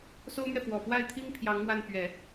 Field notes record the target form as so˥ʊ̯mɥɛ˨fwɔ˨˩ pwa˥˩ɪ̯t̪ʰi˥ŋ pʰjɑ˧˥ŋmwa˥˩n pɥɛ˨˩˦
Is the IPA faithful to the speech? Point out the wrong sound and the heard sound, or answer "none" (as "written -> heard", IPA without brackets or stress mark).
none